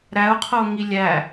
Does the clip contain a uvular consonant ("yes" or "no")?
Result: yes